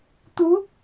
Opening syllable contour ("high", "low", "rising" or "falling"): rising